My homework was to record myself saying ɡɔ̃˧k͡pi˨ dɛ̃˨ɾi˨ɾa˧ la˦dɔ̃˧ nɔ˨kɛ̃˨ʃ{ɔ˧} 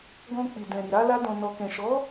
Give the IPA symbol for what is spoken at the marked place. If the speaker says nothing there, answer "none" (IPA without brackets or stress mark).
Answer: ɔ˨˦